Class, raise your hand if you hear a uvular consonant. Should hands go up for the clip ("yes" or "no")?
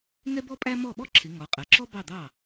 yes